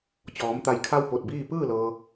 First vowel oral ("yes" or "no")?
yes